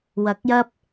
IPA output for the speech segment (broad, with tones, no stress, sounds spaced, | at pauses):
w ɐ˨˥ k̚ j ɐ˥ p̚